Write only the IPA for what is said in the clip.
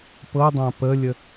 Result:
p ɤ dˤ ã p ə lʲ ə

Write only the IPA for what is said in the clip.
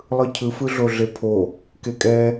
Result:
lˠ ɯ cʰ ɯ f ɯ ɮ o ɮ e pʰ o | k e kʼ ɛ

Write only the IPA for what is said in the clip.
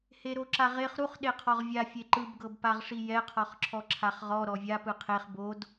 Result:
h e ɾ o ǁ a ʁ e χ ɾ u χ ɗ e qʰ ɔ ʁ vʲ a fʲ e ǃ ɯ b ɡ ɤ b p a ʁ ʂ i j ɛ qʰ ɔ χ ǁʰ ɔ ǁʰ a χ ʁ ɔ ɾ ɔ vʲ a p ɯ qʰ e χ b o d

